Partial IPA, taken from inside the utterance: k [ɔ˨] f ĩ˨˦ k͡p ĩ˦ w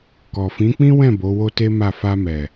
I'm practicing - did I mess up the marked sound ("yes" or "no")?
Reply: no